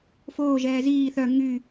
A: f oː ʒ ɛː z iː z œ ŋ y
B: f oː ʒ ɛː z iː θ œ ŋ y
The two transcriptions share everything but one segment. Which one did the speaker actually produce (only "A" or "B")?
B